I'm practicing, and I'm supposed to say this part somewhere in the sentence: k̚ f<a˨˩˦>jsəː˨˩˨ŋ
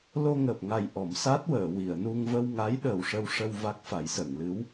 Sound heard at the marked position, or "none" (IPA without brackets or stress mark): a˨˩˦